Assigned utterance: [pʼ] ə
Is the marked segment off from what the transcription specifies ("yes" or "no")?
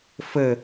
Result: yes